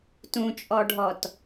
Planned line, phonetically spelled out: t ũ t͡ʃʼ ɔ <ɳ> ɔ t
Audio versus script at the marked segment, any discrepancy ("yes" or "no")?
yes